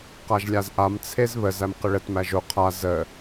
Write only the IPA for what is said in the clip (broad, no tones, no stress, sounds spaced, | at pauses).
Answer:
q a ʒ lʲ a z ʔ a m t͡sʰ e z β ə z æ m q ə ɭ ə t m æ ʒ o qʰ a z ə